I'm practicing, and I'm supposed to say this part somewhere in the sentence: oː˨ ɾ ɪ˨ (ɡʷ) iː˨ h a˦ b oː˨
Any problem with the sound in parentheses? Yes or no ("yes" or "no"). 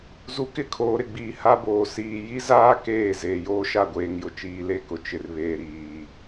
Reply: yes